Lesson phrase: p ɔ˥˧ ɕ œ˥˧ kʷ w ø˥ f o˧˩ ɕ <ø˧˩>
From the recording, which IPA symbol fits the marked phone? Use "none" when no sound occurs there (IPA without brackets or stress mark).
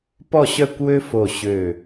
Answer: ø˧˩